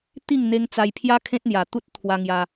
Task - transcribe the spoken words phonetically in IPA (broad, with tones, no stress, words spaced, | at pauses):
t̪i˥˧ŋ n̪e˧ŋt͡sa˧jpʰja˦ kʰẽ˦t̚n̪ja˨˩ t̪u˦t̚ t̪ʰwa˧ŋja˧